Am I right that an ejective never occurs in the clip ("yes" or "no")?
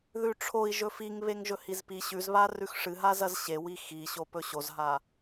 yes